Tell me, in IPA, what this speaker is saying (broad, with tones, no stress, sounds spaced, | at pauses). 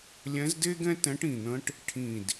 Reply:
lʲ ɛ̃˧˥ z d e˥ ɡ ɛ̃˥ t ɛ̃˧˥ ʈ ĩ˨˩ n̪ ə̃˧˥ ʈ | ʈʰ ĩ˨˩ d